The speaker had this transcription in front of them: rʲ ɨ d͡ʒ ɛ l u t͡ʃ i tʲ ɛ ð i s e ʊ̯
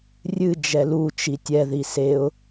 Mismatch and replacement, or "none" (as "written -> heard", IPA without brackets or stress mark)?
none